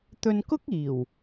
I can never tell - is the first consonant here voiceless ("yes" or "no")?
yes